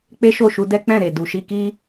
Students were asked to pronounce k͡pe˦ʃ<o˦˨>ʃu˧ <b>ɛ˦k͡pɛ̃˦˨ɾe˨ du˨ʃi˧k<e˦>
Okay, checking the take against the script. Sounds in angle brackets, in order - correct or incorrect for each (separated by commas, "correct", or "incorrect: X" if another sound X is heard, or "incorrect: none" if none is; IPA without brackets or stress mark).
correct, incorrect: d, incorrect: i˦